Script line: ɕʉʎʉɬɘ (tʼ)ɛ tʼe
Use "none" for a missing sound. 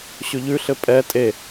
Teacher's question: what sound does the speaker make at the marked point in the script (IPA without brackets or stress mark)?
pʼ